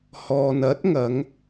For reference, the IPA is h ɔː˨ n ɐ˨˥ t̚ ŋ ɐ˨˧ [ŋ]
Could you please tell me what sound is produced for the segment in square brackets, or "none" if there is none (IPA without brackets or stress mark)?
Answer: ŋ